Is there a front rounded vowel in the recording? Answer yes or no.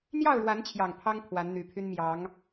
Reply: yes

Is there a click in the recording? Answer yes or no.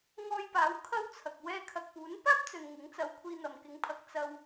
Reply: no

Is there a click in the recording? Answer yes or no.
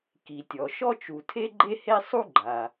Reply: yes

